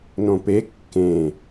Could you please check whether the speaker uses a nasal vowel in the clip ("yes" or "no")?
yes